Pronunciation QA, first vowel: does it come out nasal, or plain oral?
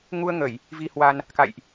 oral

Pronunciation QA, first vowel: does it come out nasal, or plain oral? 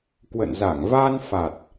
oral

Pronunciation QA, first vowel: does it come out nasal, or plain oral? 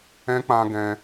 nasal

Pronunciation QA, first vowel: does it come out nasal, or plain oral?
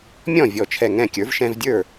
nasal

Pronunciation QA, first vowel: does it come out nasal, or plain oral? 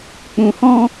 nasal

